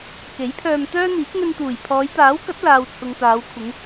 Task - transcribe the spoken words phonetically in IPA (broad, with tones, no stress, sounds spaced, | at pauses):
k e˨˥ j pʰ œː˧ m t̪ œː˥ n̪ iː˨˥ k̚ ŋ ɵ˧ n t̪ uː˨˩ j pʰ ɔː˨˧ j t̪ aː˨˥ w k ɐ˨˥ t̚ l aː˨ w t͡sʰ ʊ˨ ŋ t̪ aː˨˧ w kʷʰ ɪ˨˧ ŋ